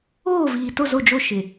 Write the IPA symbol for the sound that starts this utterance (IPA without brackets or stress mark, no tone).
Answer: oː